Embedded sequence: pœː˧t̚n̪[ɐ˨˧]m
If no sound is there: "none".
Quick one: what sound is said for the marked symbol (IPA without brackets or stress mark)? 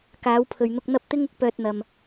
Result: ɐ˨